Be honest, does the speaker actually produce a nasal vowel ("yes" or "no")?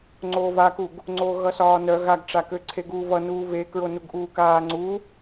no